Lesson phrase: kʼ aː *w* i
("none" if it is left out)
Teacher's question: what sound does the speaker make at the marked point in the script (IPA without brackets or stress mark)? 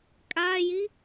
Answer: j